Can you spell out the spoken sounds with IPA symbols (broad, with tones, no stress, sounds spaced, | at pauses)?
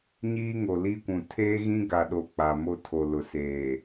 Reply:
ɲ iː˦ ŋ o˨ l i˦ kʷ ũ˨ tʰ eː˦ ɣ ĩ˦ ɡ a˨ ɗ o˨ k͡p a˨ m o˦ tʰ o˨ l ʊ˨ s eː˨